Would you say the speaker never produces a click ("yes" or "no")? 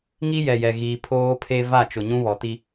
yes